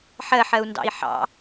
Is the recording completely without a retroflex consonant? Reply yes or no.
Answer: yes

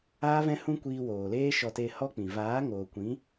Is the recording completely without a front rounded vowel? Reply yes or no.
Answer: yes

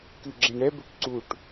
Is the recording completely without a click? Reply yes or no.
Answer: no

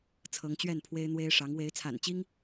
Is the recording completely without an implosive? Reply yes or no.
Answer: yes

